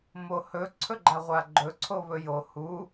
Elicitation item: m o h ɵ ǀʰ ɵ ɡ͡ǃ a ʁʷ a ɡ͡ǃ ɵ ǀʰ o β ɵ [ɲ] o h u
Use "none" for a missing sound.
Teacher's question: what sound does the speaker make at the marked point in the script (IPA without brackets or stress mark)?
j